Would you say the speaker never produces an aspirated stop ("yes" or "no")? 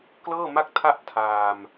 no